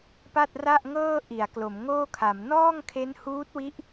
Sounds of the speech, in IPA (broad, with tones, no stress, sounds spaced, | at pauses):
p a˥˩ t̚ r a˥˩ ʔ ŋ ɤː˥˩ ʔ i˩˦ a̯ k l o˩˦ m ŋ oː˥˩ kʰ a˩˦ m n ɔː˥˩ ŋ kʰ e˦˥ n h uː˦˥ t̚ w i˦˥ ʔ